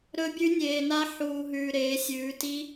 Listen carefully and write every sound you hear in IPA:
ɾ ɵ˦˥ bʲ ʉ˦˥ nʲ eː˧ n a˦˥ ħ uː˧ ɦ ʉː˧ ɾ eː˨˥ sʲ ʉː˨˥ t i˦˥

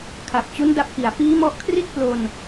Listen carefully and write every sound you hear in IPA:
kʰ a˨˩ p̚ t͡ɕ u˦˥ n d a˦˥ p̚ k i˨˩ a̯ f iː˦˥ m ɔ˦˥ ʔ kʰ r i˥˩ t̚ p l o˧ n

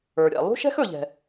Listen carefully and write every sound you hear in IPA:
ə˞˩ ɾʲ ɛ̰˩ lˠ ṳ˥ ʃ ɛ̤˥ x ɵ˩ ʎ ɛ̤˩

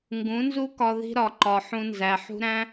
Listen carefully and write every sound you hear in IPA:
ŋ ɡ ũ˨˦ n z u˦ k ɒ˧ ð i̤˦ ɾ ɒ˨ ǃ ɒ˨ ħ ũ˧ n z æ˨ ħ ṳ˦ ɾ æ̃˦

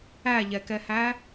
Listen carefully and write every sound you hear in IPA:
æ ʎ ɛ k ɛ h æ

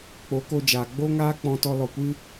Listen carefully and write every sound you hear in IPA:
k͡p o˨˦ k o˧ d͡ʒ aː˨ ɡ͡b o˦ ŋ aː˦ k͡p ɔ̃˧ t ɔ˧ l ɔ˧ kʷ ɨ˦

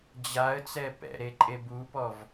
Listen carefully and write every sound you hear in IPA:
d͡ʑ a ə̯ t͡s ɛ p ɛ̰ ɾ e ǃʼ e b u p ɔ v

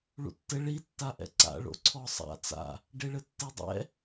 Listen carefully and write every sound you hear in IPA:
ɭ ṵ tː ɘ ɭ i tː a ʔ ɛ̰ ǀ a̰ ɭ o̰ ǀʰ ɔ sˤ a̰ t͡s a̰ | ɖ e ɭ ɘ tː e dˤ ɛ̰

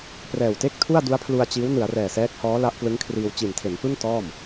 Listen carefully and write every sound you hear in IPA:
p r ɛː˨˩ w t e˥˩ k̚ tʰ u˥˩ a̯ d u˦˥ a̯ pʰ l u˧ a̯ t͡ɕ iː˦˥ w n ɯ˩˦ a̯ r ɛː˨˩ s ɛː˦˥ k̚ h ɔː˦˥ l a˦˥ ʔ p l ɯ˦˥ ŋ kʰ r iː˧ w t͡ɕ i˨˩ n tʰ e˩˦ n p ɯ˥˩ ŋ t ɔː˥˩ m

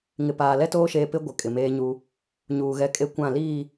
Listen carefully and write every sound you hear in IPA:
ŋ ɪ˨ p aː˨ l ɛ˦ t oː˦ ʃ eː˨ p ɪ˦ ɡʷ ɪ˨ kʼ ɪ˨ m eː˦ ɲ u˦ | ɲ uː˨ ɣ ɛ˨ kʼ e˨ kʷ ã˦˨ l iː˦˨

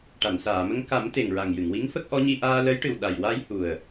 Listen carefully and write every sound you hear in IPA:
ʈ a˨˩˨ n s aː˨˩˨ m ə˧ ŋ k a˨˩˦ m t̪ e˨˩ ŋ ɹ a˨˩ ŋ j ɨ˨˩˨ ŋ w i˧˥ ŋ f ə˦˥ k̚ ʔ ɔ˧˥ ɲ i˧ ʔ aː˧ l ə˧˥ j ʈ ɨ˨˩ w ɗ a˨˩ j w a˧ j h u˨˩ ə̯

